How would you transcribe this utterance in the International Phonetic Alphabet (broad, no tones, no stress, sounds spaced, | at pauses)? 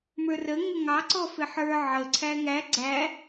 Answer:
m ə˞ r ə ŋ ə ŋ ɑ ǀ ɔ f ɪ ħ ə˞ ʕ ə ǀʰ æ ŋ æ ɡ͡ǀ æ